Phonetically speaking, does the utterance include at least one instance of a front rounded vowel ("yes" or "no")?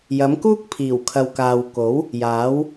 no